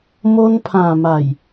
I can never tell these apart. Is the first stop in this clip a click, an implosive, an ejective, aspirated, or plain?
aspirated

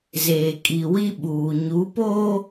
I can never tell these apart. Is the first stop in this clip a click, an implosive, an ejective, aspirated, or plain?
ejective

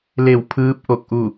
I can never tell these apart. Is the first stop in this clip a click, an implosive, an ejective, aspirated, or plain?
aspirated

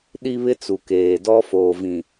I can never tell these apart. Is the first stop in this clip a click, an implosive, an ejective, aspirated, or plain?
implosive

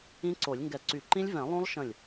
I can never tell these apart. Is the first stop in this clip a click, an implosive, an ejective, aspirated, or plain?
click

